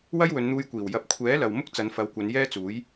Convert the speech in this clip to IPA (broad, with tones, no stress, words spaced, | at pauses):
wɐ˥jwɵ˨˧nn̪uː˧jkʷiː˨˩w jɐ˨˥p̚kʷʰɛː˨˥ lɐ˨w mʊ˥k̚ t͡sɐ˨˧nfɐ˨˧wkʷɐ˨˧n jɛː˥t͡suː˨˥j